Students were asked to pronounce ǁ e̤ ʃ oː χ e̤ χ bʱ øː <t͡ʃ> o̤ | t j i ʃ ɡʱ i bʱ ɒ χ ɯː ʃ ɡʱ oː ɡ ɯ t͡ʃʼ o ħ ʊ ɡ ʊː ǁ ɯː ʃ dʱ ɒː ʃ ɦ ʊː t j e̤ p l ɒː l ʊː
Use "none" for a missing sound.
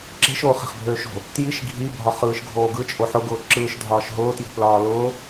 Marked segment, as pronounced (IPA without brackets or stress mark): ʃ